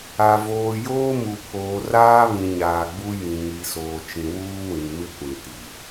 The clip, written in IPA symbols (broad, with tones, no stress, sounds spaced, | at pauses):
a˨ v oː˨ j oː˦ m u˨ pʰ oː˨ r aː˦ β ĩ˨ ɲ aː˨ ɡ͡b u˦ j ĩ˨ ŋ i˨ s oː˨ t͡ʃ ĩ˨ w uː˦ w ĩ˨ m ɪ˦ kʷ ĩ˨ t i˨